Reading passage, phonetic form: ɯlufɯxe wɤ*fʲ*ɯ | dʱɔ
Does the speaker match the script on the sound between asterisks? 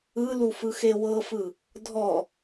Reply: no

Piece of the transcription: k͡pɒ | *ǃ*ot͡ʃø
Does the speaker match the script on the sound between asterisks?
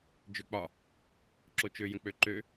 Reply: no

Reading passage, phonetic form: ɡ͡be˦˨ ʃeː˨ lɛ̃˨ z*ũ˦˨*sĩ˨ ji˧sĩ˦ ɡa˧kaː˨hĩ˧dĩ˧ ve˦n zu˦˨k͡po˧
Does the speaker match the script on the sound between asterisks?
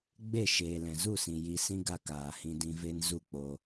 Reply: no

